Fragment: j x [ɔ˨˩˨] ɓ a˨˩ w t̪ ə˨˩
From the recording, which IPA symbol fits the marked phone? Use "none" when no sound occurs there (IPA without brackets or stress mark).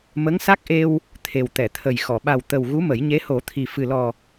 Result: ɔ˨˩˨